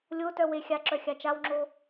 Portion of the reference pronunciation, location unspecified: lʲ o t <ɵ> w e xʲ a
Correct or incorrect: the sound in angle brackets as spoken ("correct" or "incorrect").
incorrect